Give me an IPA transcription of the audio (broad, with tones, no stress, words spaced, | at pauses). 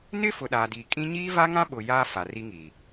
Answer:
nɪ˦fʊ˨ ɗa˨di˨ kʼĩ˦ ɲiː˦va˦ŋã˦ɓʊ˨ jaː˦ fa˨ ri˦ŋiː˨